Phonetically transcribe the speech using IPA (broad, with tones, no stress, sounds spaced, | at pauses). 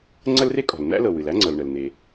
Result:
ŋ͡ǀ ə˥ l r e˥ kʼ ɔ̤˩ l n̪ æ̰˥ l ɤ˩ w ɨ˩ l æ˥ ŋ͡ǀ ɤ˩ l ɳ ə˩ l n̪ e˩